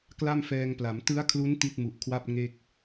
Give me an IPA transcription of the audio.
k l a˥˩ m f ɛː˧ ŋ p l a˩˦ m t ɯ˦˥ a̯ kʰ l u˦˥ n t i˥˩ t̚ m u˨˩ ʔ kʰ w a˥˩ p̚ ŋ e˥˩ k̚

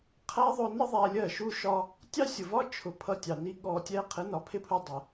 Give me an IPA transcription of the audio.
qʰ æ˦ ðˤ ʊ˧ n ə˦ ðˤ æ˧ lʲ ɜ˦˨ ʃ u˦ ʃ ɒ˦ | tʲ ɑ˦ sʲ ʊ˨ v ɒ˦ t͡ʃʰ ʊ˨˦ pʰ ʌ˧ tʲ ɑ˨ n i˦ ɠ ɔ˧ tʲ ɛ˦ qʰ ɪ˨˦ n ɒ˨ pʰ ɪ˦ pʰ u˧ dˤ ə˧

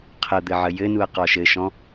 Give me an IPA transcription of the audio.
qʰ ə d̪ ɘ ʕ ə j ɘ n u ɐ̯ q ɔ ʃ ɘ ʃ ɔ̃

